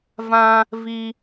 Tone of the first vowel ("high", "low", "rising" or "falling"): high